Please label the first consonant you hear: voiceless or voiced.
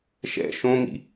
voiceless